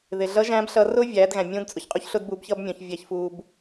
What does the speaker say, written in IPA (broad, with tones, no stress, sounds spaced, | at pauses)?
ð ɪ˩ ɮ ʌ˧˥ ʒ æ̃˧˥ b ɬ ʌ˧ r ʊː˥ vʲ æː˩˧ d ɣ æ̃˩ mʲ ũː˧˥ d t͡sʼ ʊ˩ ç qʼ u˥ ç ɬ ʊː˥ d b uː˧˥ b ç ʌː˥ b mʲ ɔ̃˩˧ ç vʲ æ˧ ç f uː˧ b